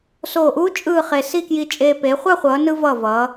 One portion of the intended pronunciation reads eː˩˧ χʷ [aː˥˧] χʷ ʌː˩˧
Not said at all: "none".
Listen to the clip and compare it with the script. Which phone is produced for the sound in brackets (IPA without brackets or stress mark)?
a˥˧